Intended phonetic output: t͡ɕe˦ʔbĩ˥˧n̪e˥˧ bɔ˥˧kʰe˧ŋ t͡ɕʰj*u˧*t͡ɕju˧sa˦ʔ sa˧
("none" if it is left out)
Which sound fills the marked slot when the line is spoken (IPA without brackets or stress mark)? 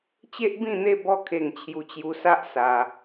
u˧